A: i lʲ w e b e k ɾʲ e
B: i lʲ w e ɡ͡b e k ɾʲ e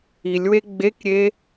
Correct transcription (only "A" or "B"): B